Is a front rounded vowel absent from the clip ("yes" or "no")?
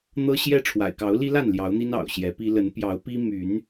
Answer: no